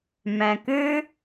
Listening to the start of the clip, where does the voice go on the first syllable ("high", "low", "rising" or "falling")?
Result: low